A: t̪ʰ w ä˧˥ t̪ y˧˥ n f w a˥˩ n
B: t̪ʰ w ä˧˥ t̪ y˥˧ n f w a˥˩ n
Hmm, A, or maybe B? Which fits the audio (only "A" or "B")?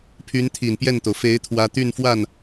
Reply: B